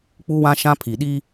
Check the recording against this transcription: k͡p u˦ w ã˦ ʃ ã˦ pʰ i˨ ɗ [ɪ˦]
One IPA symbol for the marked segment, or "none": i˦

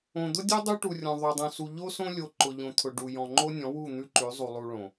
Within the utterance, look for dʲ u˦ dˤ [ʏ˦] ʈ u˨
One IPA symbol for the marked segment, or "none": u˦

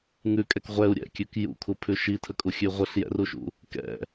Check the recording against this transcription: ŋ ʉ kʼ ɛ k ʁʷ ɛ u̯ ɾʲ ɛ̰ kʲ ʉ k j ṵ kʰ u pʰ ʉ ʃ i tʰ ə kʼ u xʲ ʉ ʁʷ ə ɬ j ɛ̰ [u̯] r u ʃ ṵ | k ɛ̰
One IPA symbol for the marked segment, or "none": none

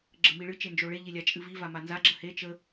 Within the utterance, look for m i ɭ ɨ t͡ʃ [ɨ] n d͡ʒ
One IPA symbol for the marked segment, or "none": e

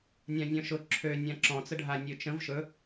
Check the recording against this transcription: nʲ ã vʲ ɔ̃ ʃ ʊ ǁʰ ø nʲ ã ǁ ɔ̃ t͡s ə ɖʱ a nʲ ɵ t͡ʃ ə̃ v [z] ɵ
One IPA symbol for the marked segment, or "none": ʃ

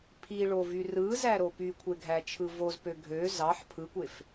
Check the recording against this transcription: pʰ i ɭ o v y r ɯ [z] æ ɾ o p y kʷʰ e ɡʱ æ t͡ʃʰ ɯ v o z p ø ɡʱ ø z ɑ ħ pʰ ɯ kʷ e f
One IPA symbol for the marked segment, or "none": z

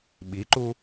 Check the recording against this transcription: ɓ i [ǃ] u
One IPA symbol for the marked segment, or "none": ǃ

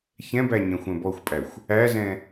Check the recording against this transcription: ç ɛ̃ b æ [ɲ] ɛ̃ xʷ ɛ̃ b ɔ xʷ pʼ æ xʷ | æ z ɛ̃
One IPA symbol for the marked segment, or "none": ɲ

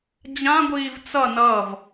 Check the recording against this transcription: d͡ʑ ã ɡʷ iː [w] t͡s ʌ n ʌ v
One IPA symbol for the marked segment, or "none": v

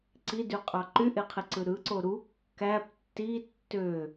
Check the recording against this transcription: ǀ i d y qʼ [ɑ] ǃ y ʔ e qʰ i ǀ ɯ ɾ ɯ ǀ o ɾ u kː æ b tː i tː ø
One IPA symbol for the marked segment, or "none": ɑ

